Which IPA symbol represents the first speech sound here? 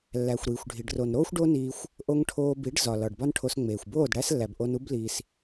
lː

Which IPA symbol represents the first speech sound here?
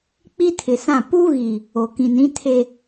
k͡p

